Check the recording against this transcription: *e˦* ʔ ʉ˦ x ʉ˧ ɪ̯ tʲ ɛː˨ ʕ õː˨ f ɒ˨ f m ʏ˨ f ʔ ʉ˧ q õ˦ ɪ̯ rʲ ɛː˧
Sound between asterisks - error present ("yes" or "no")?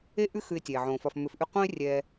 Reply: no